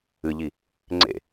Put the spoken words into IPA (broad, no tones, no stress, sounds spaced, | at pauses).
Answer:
ɨ ʎ i | ŋ͡ǀ ḛ